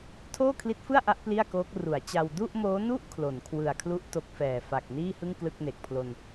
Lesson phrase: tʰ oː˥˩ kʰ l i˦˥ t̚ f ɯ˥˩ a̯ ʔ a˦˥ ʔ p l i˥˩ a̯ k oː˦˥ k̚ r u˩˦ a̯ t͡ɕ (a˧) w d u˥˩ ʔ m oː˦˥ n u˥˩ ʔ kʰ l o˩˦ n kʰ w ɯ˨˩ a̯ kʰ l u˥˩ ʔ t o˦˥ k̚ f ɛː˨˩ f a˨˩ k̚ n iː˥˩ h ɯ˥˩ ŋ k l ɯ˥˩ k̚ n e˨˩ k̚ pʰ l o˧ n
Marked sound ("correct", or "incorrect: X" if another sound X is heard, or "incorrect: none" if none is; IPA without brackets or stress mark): correct